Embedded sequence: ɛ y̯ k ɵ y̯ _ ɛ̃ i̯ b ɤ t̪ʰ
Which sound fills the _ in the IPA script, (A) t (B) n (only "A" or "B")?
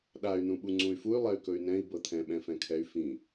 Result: B